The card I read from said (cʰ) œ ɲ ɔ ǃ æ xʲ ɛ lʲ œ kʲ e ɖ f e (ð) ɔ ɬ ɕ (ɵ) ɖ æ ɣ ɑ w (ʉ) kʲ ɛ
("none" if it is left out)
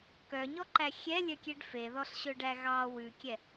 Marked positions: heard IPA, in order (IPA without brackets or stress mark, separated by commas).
k, ð, ɵ, ʉ